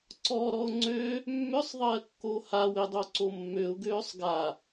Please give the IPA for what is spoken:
ǀ ɔ ɾ ɔ ʊ̯ ŋ͡ǀ ø | mː ʏ sˤ ðˤ ɜ kː o h a w e dˤ o ǀ o mː ø ʊ̯ ɡ øː sˤ ɡ a

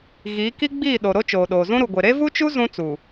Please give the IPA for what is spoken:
ɣ iː˨˦ k i˦ ɡ͡b iː˦˨ ɗ o˨ ɾ o˦ t͡ʃ oː˨ ɗ oː˨ z ũ˦ ɾ u˨ ɡʷ e˨ ɾ e˦ v u˦ t͡ʃ u˦ z ũ˦ t͡s u˨

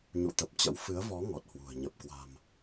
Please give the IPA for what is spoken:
ɲ ṵ˧˨ t̪ ə˨˩ p̚ t͡ɕ ə̰˧˥ w f ɨ˨˦ ə̯ v ɔ˨˦ ŋ ɔ˨˩ t̚ h w ṳ˨˩ ə̯ ɲ ə˨˩ p̚ k w a̤˨˩ m

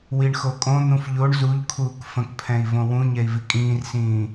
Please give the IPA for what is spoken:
w i ɳ x o kʼ õ n̪ ũ f ʎ o ɳ z u ʎ kʰ uː k f ə̃ k pʰ ɛ̃ i̯ v õ w ũ ɲ ɛ i̯ v i kʼ ĩː r s ĩː

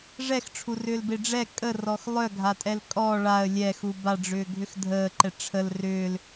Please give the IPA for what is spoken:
ʐ ɛ x ʈ͡ʂʰ u r ʏː l b e ɖ͡ʐ ɛ kʼ ə r ɔ x lˠ œ ɡʱ a tʼ ɛ l kʼ ɔ ɭ a ə̯ lʲ ɛ x u b a ɖ͡ʐ ʏː ɡʱ ʏ x dʱ əː ǃ ɛ ʈ͡ʂʰ ə l r ʏː l

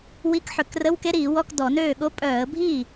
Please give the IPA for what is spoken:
w i˧˥˧ k ħ ø˧˩˧ k r ə˧˥˧ w k e˦˥ ɾ iː˧˩˧ w ɔ˧˥˧ k d ɔ˧˩˧ n øː˥˩ ɠ o˦˥ pʼ œː˧˩˧ ə̯ bʱ iː˥˩

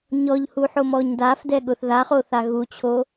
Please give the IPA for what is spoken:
ɲ ɔ ʎ h u ħ o m ɔ ɲ d a f d ɛ ɠ ʊ θ ð a χ o θ a ɣ u t͡ɕʰ o

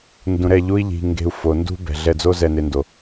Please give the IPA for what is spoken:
n d ũ˨ ɾ ɛ˦˨ ʎ u˦ i̯ ʎ i̤˧ ŋ ɡ e̤˧ u̯ f o˨ n d ṳ˦ b ɛ̤˨ ɮ ɛ˧ d͡z o˦ z ɛ˧ n e˧ n d o˨

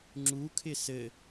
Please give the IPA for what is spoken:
ŋ͡ǁ u kʰ ɪ s ɘ

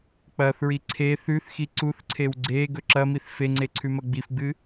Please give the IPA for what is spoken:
k͡p ɐ θ ɹ i ǀʰ e θ ʉ θ x i ǀ u θ ǀʰ e w ɡ͡ǀ e ɡ ɵ ǁ ɐ m i θ f e ŋ͡ǀ e ǀʰ ʉ m ɐ ɡ͡b i f ɡ͡b ɨ

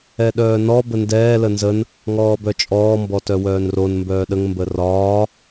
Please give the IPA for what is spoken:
ɛ ɗ œː n ɔ b ə n d ɛː l ə n z ə n | ŋ ɔː b œ t͡ʃʼ ɔː m b ɔ t œ w œː n r o n m b œː ɗ ə ŋ m b ə r ɒː

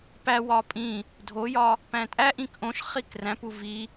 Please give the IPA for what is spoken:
p æ w ɒ pʼ ĩ | dʱ o j ɒ | p æ̃ tʼ æ ʔ ĩ k ʔ õ ʃ χ i k r æ̃ p u v i

